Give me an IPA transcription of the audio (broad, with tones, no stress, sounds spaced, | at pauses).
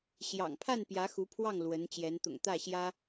ɕ j ɑ̰˨˩ ŋ pʰ a˥˩ n p j ä˧˥ x u˧˥ pʰ w ɑ˥˩ ŋ l w ə˧˥ n t͡ɕ j ɛ˧˥ n t̪ ʊ̰˨˩ ŋ t̪ ä˥˩ ɕ j ä˥